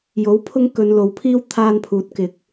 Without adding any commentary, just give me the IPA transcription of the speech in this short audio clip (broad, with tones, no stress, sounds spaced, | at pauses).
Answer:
j o˨˥ w pʰ ʊ˧ ŋ k ɵ˨ n l o˨ w pʰ iː˧ w t̪ʰ aː˧ n pʰ uː˨ t̚ k ɪ˨ k̚